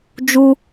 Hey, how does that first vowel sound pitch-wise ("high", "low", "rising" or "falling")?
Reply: high